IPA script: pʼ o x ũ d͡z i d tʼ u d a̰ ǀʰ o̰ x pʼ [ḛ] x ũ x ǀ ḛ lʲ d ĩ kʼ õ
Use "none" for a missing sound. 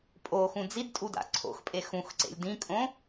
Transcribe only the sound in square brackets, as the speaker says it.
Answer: e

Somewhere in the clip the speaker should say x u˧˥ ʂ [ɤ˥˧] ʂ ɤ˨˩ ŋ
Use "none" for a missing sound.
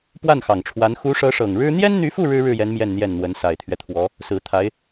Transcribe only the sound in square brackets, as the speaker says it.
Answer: ɤ˧˥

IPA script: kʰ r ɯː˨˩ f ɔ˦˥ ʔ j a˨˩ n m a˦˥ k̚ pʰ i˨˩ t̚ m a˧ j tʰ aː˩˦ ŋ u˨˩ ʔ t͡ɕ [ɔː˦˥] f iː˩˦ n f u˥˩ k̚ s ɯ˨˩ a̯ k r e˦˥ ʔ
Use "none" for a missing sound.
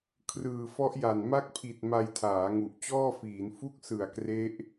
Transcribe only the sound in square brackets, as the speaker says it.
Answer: ɔː˥˩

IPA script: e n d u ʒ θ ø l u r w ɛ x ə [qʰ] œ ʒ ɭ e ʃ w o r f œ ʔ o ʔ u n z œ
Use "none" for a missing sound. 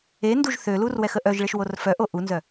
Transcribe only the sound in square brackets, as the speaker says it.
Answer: ʔ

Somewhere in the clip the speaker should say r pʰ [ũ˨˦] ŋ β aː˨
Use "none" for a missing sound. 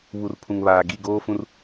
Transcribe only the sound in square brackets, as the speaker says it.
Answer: ũ˨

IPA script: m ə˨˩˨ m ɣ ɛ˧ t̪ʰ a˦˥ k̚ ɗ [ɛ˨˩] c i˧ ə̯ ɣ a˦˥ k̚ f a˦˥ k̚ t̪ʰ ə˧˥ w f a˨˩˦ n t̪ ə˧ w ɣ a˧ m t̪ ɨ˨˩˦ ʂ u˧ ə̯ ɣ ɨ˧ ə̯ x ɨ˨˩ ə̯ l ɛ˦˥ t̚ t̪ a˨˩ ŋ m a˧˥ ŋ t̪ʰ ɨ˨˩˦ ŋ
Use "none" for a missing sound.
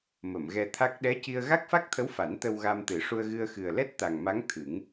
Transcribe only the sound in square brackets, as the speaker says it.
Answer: ɛ˧˥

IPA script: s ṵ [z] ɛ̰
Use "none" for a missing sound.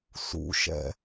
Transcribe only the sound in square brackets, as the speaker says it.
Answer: ʃ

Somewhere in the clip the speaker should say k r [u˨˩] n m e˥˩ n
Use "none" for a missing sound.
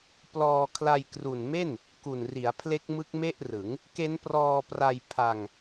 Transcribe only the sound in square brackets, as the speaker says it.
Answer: u˨˩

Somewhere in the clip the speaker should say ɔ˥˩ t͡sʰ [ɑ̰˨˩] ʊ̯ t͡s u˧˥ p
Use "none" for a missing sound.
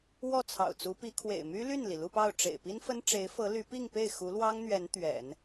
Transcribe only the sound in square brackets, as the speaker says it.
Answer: ɑ̰˨˩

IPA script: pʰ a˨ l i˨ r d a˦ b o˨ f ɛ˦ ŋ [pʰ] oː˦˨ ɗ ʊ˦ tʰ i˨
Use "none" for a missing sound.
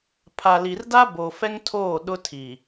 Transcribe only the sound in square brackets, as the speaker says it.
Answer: tʰ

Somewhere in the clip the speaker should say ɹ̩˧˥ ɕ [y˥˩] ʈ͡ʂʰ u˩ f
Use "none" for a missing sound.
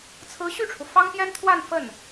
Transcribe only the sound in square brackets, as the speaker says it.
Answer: y˥˩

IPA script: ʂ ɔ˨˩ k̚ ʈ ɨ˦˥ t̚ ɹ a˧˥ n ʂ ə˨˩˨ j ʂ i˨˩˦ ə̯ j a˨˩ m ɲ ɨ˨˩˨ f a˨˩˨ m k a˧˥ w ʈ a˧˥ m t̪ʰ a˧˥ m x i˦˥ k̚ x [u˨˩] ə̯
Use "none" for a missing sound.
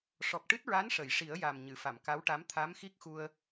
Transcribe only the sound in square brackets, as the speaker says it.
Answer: u˧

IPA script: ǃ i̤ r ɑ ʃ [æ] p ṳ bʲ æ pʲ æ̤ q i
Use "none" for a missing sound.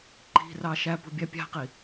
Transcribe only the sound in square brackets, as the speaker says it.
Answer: æ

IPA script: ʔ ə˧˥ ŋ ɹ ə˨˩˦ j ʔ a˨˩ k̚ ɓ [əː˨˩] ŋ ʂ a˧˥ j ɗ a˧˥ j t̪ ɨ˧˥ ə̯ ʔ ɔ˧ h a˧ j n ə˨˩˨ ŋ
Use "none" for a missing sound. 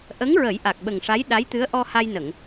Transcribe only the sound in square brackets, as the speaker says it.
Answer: ə˨˩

